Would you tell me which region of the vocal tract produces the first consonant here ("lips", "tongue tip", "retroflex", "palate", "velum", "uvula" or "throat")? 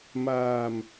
lips